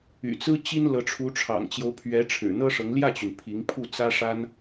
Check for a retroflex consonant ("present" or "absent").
present